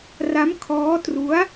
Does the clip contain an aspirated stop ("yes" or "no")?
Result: yes